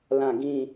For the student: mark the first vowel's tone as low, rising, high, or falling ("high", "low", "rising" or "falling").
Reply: falling